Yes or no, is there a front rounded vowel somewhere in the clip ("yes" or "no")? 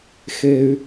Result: yes